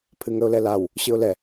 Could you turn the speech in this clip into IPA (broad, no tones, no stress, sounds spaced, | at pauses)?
pʰ ɨ ŋ ə ʊ̯ l ɛ l a w | ɕ ɨ ʊ̯ l ɛ